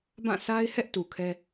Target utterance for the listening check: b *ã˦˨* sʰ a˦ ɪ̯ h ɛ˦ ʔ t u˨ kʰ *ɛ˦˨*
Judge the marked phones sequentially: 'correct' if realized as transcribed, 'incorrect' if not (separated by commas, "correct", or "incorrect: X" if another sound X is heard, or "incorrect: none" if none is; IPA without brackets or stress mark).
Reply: correct, incorrect: ɛ˦